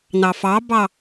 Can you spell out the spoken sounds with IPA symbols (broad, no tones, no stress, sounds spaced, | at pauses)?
n ɑ f ɑ b ɑ